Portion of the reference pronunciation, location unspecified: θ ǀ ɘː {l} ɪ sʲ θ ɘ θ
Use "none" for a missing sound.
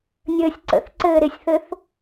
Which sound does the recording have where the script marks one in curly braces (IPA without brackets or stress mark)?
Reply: ɾ